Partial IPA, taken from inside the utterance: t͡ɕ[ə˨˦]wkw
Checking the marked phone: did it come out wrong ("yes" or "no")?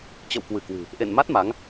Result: yes